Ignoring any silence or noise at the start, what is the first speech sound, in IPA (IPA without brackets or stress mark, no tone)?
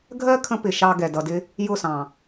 ɡʱ